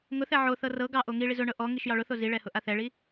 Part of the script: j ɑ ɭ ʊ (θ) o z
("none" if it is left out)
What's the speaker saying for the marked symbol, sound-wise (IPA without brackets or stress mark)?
θ